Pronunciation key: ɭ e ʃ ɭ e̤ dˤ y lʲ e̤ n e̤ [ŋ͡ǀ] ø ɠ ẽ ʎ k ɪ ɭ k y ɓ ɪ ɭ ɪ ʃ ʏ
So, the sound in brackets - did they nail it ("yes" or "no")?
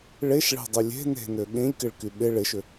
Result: no